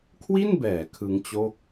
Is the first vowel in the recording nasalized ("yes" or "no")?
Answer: no